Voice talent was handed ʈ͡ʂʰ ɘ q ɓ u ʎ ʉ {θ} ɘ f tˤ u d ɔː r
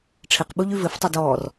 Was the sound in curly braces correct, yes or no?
no